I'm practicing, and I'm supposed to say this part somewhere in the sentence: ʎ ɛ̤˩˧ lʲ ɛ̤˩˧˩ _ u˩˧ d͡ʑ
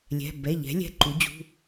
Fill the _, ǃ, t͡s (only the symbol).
ǃ